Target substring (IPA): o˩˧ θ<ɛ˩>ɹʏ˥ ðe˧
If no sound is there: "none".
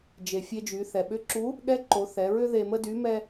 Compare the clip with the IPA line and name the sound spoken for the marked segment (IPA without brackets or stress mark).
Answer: ɛ˩˧